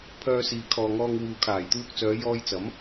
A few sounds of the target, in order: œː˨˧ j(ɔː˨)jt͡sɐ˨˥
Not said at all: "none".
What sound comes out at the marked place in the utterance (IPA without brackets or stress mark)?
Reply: ɔː˧